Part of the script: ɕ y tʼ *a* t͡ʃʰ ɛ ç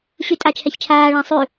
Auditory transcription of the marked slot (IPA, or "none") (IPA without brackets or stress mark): a